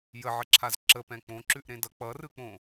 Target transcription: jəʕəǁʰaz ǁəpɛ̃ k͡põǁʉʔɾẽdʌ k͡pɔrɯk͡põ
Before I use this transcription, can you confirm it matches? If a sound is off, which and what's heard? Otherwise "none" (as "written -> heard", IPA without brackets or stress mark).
ɔ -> ʌ